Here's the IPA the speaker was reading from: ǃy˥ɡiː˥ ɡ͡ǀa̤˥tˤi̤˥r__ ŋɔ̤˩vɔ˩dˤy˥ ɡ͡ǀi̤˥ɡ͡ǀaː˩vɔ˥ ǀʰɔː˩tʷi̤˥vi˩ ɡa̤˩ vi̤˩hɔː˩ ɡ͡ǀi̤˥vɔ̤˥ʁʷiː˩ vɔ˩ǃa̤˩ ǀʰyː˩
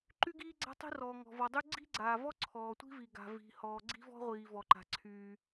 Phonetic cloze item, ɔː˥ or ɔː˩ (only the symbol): ɔː˩